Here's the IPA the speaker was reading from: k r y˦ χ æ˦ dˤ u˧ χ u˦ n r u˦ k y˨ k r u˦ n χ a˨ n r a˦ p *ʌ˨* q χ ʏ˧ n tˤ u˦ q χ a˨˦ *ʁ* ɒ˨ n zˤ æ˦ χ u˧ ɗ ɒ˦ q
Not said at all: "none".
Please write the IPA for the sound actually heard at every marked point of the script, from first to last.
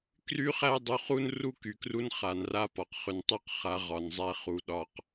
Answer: ɒ˨, ʁ

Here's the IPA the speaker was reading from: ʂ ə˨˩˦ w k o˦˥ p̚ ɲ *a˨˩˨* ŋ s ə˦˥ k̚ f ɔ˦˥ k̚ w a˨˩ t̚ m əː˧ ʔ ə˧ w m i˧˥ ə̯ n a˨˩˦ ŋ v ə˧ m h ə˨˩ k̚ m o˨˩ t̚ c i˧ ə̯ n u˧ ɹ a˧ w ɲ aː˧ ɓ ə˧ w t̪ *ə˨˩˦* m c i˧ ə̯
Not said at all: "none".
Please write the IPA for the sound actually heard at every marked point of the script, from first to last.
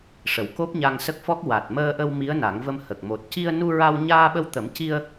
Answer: a˧, ə˨˩˦

